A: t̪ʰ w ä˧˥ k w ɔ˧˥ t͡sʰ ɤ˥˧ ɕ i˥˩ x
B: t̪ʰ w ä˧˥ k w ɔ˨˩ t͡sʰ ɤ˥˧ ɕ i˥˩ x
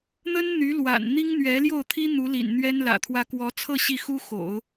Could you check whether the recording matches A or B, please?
A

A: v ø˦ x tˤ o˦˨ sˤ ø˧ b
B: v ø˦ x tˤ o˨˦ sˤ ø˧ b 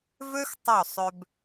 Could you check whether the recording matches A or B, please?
A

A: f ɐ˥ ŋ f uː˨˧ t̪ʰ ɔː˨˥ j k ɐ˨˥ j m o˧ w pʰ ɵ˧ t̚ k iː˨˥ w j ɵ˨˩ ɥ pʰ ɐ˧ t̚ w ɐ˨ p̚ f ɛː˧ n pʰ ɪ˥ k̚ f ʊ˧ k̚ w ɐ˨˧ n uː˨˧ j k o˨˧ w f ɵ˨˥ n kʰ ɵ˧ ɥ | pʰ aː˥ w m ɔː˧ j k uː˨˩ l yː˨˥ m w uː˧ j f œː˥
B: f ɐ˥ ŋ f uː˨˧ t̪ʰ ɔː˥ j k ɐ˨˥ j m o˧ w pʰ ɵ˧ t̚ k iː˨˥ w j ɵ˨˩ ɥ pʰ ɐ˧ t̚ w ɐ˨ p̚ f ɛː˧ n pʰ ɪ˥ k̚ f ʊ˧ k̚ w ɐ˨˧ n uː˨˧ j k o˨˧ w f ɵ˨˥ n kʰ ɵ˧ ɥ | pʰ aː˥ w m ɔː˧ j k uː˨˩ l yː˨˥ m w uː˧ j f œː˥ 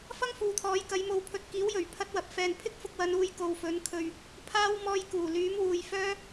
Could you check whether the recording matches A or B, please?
A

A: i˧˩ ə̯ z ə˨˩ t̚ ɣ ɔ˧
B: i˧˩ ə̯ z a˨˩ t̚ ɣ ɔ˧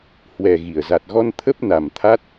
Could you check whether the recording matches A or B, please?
B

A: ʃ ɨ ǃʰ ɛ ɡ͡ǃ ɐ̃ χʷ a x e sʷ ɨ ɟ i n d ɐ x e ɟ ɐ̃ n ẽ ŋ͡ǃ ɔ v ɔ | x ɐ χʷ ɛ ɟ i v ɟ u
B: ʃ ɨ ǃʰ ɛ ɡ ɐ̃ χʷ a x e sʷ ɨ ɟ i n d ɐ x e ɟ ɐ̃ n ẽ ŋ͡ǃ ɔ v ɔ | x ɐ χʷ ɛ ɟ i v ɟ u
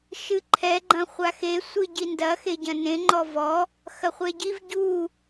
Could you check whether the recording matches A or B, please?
A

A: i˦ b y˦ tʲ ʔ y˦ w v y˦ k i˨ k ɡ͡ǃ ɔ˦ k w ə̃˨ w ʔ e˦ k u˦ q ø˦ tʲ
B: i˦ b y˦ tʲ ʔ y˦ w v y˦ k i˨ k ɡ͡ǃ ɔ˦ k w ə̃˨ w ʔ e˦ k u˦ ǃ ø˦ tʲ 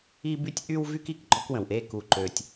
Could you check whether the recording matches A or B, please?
B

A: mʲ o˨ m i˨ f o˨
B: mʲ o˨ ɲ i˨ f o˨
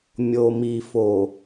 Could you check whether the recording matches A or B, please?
A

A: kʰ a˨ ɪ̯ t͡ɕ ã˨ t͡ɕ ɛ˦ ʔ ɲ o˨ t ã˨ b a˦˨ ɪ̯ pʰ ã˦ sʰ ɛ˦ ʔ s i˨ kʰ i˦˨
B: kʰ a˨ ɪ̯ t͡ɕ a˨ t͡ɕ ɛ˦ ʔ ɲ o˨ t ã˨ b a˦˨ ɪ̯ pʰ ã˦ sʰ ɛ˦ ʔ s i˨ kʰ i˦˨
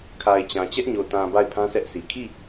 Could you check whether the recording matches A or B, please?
A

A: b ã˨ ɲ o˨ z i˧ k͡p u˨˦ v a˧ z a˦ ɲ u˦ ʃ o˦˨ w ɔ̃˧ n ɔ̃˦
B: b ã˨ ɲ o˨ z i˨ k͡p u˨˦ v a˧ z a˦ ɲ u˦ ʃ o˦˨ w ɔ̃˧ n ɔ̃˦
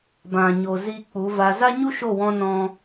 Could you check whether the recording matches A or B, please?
A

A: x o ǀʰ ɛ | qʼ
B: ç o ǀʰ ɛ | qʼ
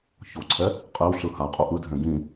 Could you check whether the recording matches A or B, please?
B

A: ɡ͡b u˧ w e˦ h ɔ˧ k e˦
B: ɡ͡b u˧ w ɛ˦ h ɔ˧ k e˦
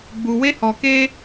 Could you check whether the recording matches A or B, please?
A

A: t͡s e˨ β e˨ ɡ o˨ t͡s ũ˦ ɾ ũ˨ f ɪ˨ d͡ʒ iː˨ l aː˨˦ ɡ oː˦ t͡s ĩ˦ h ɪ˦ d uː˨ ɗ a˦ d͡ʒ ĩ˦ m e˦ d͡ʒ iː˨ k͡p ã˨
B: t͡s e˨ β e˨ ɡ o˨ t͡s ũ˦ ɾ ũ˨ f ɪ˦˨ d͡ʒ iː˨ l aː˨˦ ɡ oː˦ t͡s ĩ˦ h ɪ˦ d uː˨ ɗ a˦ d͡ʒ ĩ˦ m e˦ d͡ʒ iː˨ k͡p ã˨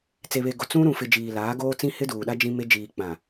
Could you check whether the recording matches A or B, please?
A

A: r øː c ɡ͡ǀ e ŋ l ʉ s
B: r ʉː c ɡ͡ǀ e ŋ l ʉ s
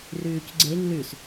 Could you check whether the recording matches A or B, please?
B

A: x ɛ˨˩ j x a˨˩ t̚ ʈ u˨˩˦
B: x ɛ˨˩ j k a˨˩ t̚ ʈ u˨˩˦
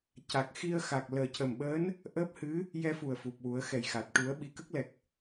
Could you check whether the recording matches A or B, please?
A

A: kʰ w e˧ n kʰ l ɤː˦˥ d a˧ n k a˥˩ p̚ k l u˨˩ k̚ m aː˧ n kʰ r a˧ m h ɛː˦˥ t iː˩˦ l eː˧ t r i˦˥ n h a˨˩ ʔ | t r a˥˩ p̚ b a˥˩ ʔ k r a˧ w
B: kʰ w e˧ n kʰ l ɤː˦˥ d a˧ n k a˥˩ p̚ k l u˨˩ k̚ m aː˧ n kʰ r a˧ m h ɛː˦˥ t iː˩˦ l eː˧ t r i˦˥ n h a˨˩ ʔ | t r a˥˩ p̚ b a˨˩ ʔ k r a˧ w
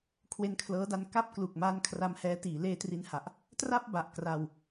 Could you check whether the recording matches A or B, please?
B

